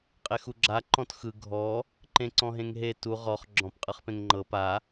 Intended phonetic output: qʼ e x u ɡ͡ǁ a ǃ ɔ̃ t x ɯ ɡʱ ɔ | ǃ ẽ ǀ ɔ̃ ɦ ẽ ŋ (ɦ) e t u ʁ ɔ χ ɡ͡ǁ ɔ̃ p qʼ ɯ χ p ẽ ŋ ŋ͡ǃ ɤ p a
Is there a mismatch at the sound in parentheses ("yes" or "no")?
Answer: no